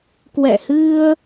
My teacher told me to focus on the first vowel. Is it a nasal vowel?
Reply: no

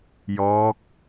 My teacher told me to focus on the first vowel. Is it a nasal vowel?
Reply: no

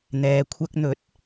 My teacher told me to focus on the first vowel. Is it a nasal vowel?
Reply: no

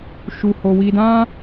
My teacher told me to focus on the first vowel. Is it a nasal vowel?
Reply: no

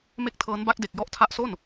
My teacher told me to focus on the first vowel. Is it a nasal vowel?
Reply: no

